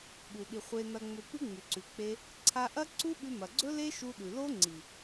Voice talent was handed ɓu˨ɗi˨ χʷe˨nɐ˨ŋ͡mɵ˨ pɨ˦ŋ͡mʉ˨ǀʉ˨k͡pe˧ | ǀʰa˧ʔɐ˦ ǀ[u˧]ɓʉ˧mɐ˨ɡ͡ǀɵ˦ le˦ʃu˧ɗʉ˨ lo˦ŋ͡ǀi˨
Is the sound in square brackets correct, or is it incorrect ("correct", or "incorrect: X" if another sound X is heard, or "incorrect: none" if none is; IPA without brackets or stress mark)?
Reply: incorrect: u˦